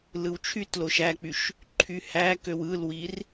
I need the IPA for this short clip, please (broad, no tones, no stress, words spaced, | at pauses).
lɯwt͡ʃʰytloʃ æk͡pyʃ | ǃʰyhækøw ɯlwir